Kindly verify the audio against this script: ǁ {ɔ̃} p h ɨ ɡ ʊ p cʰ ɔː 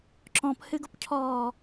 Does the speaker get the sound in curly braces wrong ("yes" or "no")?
no